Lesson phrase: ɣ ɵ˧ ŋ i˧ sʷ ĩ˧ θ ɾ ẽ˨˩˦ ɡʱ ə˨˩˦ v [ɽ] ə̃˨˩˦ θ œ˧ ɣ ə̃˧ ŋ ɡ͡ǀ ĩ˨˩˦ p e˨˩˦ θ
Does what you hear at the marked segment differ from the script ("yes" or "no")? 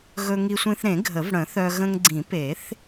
no